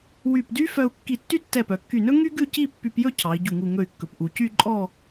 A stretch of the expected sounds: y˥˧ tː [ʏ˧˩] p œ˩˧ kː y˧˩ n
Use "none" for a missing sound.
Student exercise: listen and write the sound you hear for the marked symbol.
ɛ˧˩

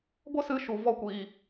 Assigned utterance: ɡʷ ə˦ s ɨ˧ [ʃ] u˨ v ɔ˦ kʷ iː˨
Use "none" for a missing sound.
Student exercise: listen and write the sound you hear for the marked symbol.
ʃ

